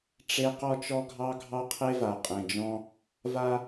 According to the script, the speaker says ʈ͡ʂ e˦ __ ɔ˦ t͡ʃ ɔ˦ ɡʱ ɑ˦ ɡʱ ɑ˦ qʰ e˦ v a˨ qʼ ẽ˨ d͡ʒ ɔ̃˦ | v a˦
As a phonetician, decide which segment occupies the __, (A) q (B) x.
A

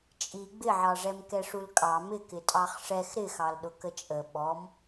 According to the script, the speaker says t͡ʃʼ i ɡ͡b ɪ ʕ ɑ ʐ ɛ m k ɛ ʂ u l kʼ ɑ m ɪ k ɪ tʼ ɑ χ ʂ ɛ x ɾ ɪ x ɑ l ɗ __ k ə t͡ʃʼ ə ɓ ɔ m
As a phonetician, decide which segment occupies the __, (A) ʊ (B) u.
A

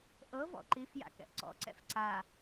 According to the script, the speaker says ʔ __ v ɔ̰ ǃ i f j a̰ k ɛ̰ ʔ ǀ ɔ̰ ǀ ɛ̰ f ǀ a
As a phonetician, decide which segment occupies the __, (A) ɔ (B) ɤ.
B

